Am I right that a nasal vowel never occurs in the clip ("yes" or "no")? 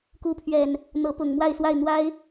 yes